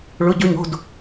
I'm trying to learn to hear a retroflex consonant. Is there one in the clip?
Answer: yes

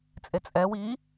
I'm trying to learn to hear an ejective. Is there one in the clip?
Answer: yes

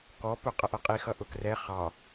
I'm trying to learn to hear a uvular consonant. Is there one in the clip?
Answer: yes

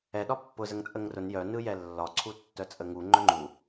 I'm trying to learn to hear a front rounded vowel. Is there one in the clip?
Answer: yes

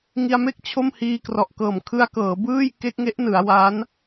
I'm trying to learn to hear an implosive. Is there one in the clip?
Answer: no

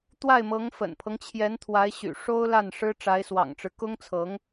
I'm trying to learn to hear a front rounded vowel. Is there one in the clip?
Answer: yes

